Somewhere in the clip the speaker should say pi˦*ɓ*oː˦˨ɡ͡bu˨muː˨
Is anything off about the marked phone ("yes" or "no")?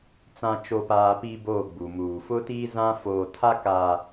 yes